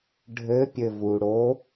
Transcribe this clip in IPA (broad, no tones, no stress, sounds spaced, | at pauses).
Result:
ɖʱ ɘ pʲ ɘ v u ɽ o